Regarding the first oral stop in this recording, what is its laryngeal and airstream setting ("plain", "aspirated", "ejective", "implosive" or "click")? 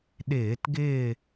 implosive